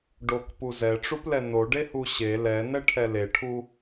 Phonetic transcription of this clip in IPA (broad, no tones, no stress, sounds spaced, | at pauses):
ɖ o k p u z ɛ ʈ͡ʂ u p l ɛ n o ɖ e h u ɕ e l ɛ n ɛ ʈʰ ɛ l e ʈʰ u